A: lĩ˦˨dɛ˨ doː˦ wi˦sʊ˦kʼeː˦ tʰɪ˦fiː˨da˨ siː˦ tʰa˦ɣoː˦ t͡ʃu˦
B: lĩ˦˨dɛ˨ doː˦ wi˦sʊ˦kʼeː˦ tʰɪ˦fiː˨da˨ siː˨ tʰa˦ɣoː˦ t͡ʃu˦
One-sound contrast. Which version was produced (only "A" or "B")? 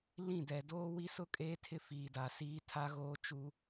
A